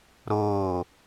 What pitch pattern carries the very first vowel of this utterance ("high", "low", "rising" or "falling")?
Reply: falling